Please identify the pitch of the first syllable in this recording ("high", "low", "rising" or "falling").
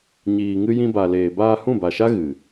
low